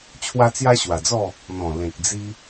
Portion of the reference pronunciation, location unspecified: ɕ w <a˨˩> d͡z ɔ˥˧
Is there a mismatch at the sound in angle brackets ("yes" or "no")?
no